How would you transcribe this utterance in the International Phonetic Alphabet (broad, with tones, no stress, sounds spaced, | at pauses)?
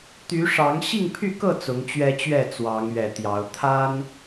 t̪ y˨˦ ʂ ɑ˨˦ ŋ ɕ i˥˨ ŋ pʰ y˥˨ k ɤ˥˨ t͡s ʊ˨˦ ŋ t͡ɕ ɥ ɛ˦ t͡ɕ ɥ ɛ˥˨ t͡s w ɑ˨˦ ŋ ɥ ɛ˨˩ t̪ j ɑ˨˦ ʊ̯ t̪ʰ a˦ n